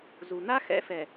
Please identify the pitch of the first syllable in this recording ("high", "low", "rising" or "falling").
low